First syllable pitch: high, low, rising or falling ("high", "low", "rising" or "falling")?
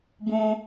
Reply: low